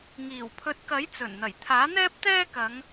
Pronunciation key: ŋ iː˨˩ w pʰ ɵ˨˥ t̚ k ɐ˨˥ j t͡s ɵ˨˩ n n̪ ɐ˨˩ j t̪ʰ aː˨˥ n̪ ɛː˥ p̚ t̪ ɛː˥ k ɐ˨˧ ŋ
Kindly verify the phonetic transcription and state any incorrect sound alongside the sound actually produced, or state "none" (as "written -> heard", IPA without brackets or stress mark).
none